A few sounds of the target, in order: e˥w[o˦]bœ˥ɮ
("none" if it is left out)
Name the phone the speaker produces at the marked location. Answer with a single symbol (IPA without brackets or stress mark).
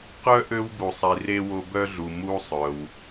o˦